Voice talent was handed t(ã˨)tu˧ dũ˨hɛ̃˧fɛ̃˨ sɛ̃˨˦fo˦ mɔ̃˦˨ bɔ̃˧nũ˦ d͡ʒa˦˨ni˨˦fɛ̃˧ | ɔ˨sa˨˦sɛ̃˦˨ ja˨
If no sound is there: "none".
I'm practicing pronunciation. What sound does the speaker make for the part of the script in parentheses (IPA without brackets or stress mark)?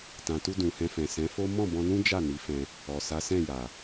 ã˨